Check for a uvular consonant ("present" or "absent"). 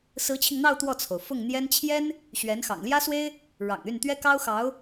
absent